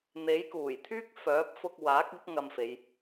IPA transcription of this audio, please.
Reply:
n̪ e˨˥ j k uː˨˩ j t̪ʰ yː˥ k̚ f œː˨˥ p̚ f ʊ˧ k̚ w aː˨˥ k̚ ɪ˨˥ k̚ ŋ ɐ˧ m f e˨˧ j

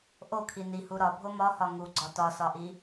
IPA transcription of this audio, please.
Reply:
ʔ o kʰ i n i h u ɾ ɒ bʱ o m ɒ h ɒ ŋ u ɡ͡ǀ ɒ t ɒ s ɒ ʔ i

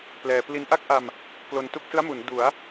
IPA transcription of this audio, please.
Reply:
p l ɛː˧ p l i˧ n ʔ a˥˩ k̚ ʔ a˧ m | k l o˧ n t u˦˥ k̚ s ɯ˦˥ a̯ m u˩˦ n d u˩˦ a̯

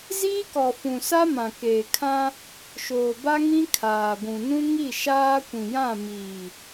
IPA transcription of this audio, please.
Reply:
z iː˦ k ɔ˨ f ũ˨ s a˦ m ã˨ k eː˨ kʰ ã˦ | ʃ oː˨ b a˦ ŋ ĩ˦ kʰ aː˨ ɡʷ ũ˨ n ũ˦ ŋ i˦˨ ʃ aː˦ kʷ ĩ˨ j ã˦˨ m iː˨

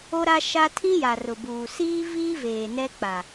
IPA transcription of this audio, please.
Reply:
o˦ ɾ a˦ ʃ a˦ tʰ ĩ˦ j a˨ r ʊ˨ b uː˨ s iː˦ v iː˦ v eː˨ n ɛ˦ k͡p a˨

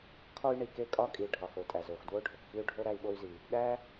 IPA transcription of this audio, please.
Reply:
kʰ ɒ˥ y̯ ɳ i˩ k e˥ kʼ ɒ˥ kʼ i˩ ɖʱ ɒ˩ x o˩ tʼ æ˩ z o˩ x d w o˥ ɖʱ o˩ k x i˥ u̯ ɖʱ o˥ ɾ æ˥ i̯ ɓ o˥ y̯ z i˩ | ɗ æ˥

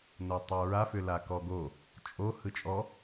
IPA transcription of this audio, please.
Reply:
n o tˤ o ɹ a f ʏ l a k ɔ ɡ o | t͡ʃʼ o h ɯ t͡ʃʼ ɔ

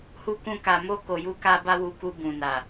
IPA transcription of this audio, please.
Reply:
h u˦ k ũ˦ k a˧ m o˦ k o˧ j u˦ k a˦ b a˦ w u˧ k u˧ b ũ˨ n a˨

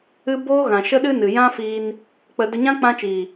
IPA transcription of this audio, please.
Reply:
ɨ˦ b oː˦ ɣ ã˨ ʃ ə˦ ɗ ɨ˦ n ɨ˨ j ã˦ f iː˧ n | k͡p ə˧ d ə˧ ɲ ã˦ k͡p ã˦ t͡ʃ iː˨

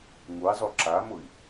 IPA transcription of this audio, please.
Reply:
ŋ u i̯ zˤ u ǁ a m ʊ i̯

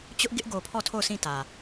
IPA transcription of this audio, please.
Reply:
t͡ɕ ʊ˦ ʔ ɡ ɪ˦ ʔ ɡ o˨ pʰ ɔ˦˨ tʰ o˦˨ ʊ̯ sʰ ĩ˦˨ t ä˨

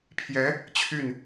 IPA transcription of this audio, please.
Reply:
pʰ j ɛ˧˥ | t͡ɕʰ y˥˩ n

